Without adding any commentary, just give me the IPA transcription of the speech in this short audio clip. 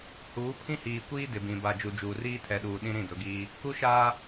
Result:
h uː˨˦ pʰ ĩ˦ h iː˨ kʷ iː˦ d ɪ˨ b ĩ˨ b a˨ d͡ʒ u˨ d͡ʒ uː˨ r iː˦ tʰ ɛ˨ ɗ uː˨ ɗ ĩ˦ ɾ ĩ˦˨ d ʊ˨˦ ɡ iː˦ | k u˦ ʃ aː˦

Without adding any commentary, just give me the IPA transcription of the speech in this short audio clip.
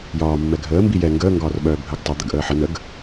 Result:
j ɒː mː ɛ ɡʱ əː m b i j ɛ ŋ ɡ əː ŋ ɡ ɒː r ɓ œː bʱ ə ɡ tˤ ə d̪ ə ɡ ʔ əː ħ ə n ə ɡ

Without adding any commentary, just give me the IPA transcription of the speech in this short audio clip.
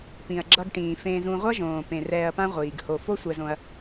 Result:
p ĩ˨ ɐ̯ ɡ͡ǁ ʌ˧ ɡ ʈ ĩː˨ f ẽ˧ z ũ˧ ʁʷ ʌ˦ ʒ õː˨ p ẽ˨ r ɛː˧ ɐ̯ p ã˦ ʁʷ iː˨ ɡ h o˨ f o˦ sʷ ɛ˧ z õ˧ ɐ̯

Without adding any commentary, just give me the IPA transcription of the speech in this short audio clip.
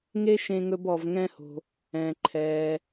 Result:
ŋ e˥ ʃ ẽ˧ ŋ ɵ˧ b ɔ˩ v ŋ ɛ̃˧ h o̤˩ | ɛ̃˩ ǃʰ ɛ˩

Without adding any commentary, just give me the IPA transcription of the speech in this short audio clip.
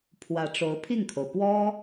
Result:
pʰ w ä˧˥ ʈ͡ʂ o˧˥ ʊ̯ pʰ i˥˩ ŋ kʰ o˩ ʊ̯ p w ɔ˥

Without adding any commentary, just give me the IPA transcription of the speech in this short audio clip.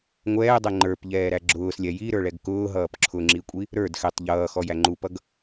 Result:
ŋʷ ɛː dˤ ɛ ŋ͡ǃ ə˞ p ʎ ɛː ɾ æ ɡ͡ǁ ʊː s lʲ ɛ j i ɾ ə˞ ɭ ɛ ɡ k ʊː ɦ ʌː p ǁʰ ʊ ŋ͡ǁ i kʷʼ i | ɾ ə˞ d x ɛ tˤ ʎ ʌː x ɔ j æ ŋ͡ǃ u p ʌ ɡ

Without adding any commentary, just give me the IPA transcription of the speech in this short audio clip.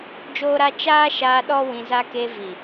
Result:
d͡ʒ oː˦ ɾ a˦ t͡ʃ aː˦ ʃ aː˧ ɗ ɔ˦ w ĩ˧ z a˦ k e˧ v i˨

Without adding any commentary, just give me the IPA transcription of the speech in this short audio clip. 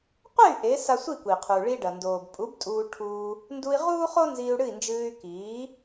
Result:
qʷ e˥˩ y̯ ʔ e˩˥ s a˧ sʷ i˥˩ kʷ i˩ qʰ u˩ ɭ i˧ ɖ ɐ˩ n d oː˩ b pʼ u˩˥ b tʼ uː˧ ʈʰ uː˧ | n d u˧ i̯ ʁ uː˥ χ o˥ n z iː˧ u̯ ɽ ɨ˥˩ i̯ n d͡ʒ ɨː˧ y̯ k iː˩˥

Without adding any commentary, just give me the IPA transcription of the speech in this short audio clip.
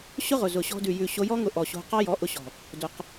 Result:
ɕ ʊ˦ ʁ ʊ˨ z ʊ˨ ɕ ɔ̤˧ d ʉ˨ j ʉ˨ ɕ o˧ j ɔ˦ ŋ ʊ˧ ʔ ɔ˨ ɕ o̤˧ q ɑ˦ j ɔ˨˦ ʔ ʊ˧ ɕ ɔ̤˨ | d ʊ˧ q

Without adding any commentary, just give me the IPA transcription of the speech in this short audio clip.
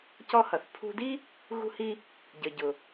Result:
c ɔ˧ h ʌ˩ θ pʰ ṳ˧ d i˥ | ɣ ṳ˧ h i˧ | ɟ ə˩ ɟ ʊ˩

